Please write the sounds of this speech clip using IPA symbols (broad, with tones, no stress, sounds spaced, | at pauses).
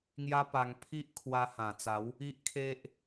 ŋ j a˦ p a˧ ŋ pʰ i˦ ʔ kʰ w a˧ h ã˨˩ t͡s a˨˦ w | i˦ ʔ kʰ e˦ ʔ